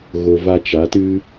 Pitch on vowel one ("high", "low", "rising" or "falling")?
low